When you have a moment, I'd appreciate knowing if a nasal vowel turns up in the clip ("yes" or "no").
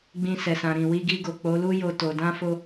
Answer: yes